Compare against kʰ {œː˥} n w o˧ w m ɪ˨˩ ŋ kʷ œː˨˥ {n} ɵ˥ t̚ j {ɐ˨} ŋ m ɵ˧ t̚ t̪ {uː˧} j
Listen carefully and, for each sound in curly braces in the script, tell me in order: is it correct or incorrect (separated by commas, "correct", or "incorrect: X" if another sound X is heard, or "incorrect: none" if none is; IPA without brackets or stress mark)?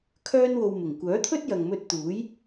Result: correct, incorrect: t̪ʰ, correct, incorrect: uː˨˥